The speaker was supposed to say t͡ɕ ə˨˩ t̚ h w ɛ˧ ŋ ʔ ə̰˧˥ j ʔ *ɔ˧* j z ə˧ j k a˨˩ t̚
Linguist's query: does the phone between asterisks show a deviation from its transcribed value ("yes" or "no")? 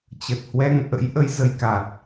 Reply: yes